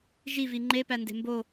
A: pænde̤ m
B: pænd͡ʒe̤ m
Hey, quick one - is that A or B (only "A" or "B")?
A